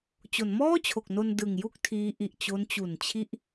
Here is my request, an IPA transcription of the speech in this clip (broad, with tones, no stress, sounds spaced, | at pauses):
t͡ɕ o˩˦ n m ɔː˥˩ t͡ɕʰ o˨˩ k̚ n o˧ n d ɯ˨˩ ŋ j u˥˩ k̚ tʰ iː˦˥ ʔ i˨˩ ʔ t͡ɕ o˦˥ n t͡ɕ u˨˩ n t͡ɕʰ i˦˥ ʔ